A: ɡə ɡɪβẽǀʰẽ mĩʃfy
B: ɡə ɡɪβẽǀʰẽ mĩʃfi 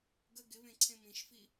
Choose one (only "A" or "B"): B